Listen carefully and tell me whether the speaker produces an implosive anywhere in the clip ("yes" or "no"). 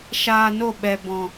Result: yes